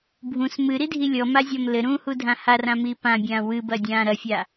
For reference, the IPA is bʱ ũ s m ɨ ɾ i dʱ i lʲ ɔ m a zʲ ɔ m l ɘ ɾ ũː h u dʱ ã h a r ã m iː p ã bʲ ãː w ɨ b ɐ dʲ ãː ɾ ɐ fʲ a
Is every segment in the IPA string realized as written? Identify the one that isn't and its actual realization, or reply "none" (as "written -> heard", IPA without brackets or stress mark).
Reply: none